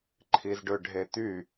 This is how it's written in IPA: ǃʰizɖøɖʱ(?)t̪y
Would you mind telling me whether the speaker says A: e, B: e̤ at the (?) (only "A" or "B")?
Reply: A